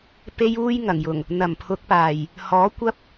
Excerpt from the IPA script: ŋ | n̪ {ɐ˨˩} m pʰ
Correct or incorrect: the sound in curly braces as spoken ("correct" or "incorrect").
correct